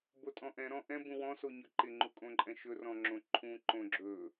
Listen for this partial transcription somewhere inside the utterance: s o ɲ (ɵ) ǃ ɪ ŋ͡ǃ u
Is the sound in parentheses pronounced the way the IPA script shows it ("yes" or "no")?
yes